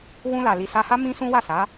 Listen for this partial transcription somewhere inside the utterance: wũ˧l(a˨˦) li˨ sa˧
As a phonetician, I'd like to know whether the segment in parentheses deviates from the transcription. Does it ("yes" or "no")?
yes